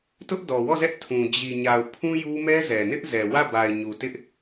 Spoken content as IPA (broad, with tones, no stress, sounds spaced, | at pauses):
t ʊ˦ ʔ d ɔ˨ w ɔ˦˨ z ɛ˦ ʔ tʰ ũ˨ d͡ʑ i˨ ɲ a˨ ʊ̯ pʰ ũ˦ j u˦ m ɛ˦ z ɛ˨ n ɪ˦ ʔ z ɛ˨ w ä˦˨ b a˨ ɪ̯ ɲ u˨ t ɪ˦ ʔ